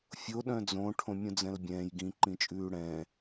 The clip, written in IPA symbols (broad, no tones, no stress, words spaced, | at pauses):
fʲo ɗœ̃d͡zõ ʈʰõmʲũd͡zɛ̃lbʲɛ̃ːj ɡĩ ǃĩt͡ʃʼʉːɽɛ̃ː